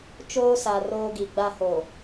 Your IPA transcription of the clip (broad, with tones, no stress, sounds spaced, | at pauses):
t͡ʃ oː˦ s a˨ r oː˦ ɡ i˨ ɡ͡b a˦ h o˨